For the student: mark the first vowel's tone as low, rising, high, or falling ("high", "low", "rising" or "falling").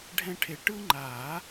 high